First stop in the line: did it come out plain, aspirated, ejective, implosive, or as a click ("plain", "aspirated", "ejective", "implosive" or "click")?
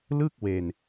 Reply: plain